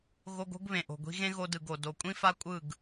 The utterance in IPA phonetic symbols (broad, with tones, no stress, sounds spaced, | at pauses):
ɣ o˧ ɡ o̤˦ ɡ β ẽ˨ ʔ o̤˨ ɡʷ i̤˧ ɣ ẽ˦ ɣ o˧ d ɯ˨ ɡ o˨ d o˨ kʷʼ ĩ˦ f a˦ kʷʼ ɯ˦˨ ɡ